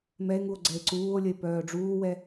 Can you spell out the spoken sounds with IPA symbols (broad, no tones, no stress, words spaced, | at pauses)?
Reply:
mɛe̯ŋuo̯ ɡ͡ǀɛe̯ǀuːo̯lʲəe̯ pœːɖ͡ʐuːwɛ